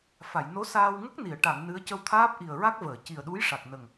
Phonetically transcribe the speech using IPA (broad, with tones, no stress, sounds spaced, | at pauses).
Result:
f a˨˩˨ j n o˧˥ s aː˧ w ŋ ə˦˥ k̚ n i˨˩˨ ə̯ ʈ a˨˩˨ ŋ n ɨ˧˥ ə̯ c ə˧ w t̪ʰ aː˦˥ p̚ ʔ i˨˩ ə̯ ɹ a˦˥ k̚ v əː˨˩˨ c i˨˩ ə̯ ɗ u˧˥ j ʂ a˨˩ k̚ n ə˨˩ ŋ